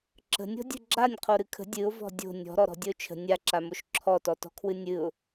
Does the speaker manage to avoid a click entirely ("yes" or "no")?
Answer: no